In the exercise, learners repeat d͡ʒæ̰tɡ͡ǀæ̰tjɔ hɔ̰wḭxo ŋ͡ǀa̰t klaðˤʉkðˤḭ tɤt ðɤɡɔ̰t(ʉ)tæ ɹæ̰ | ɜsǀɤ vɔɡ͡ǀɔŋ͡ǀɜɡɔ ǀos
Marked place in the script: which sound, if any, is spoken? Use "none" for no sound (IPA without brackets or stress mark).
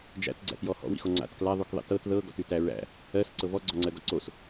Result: ʉ